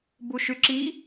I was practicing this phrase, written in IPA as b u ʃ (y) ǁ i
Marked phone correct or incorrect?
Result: correct